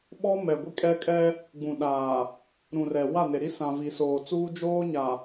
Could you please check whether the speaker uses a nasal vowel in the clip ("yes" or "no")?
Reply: yes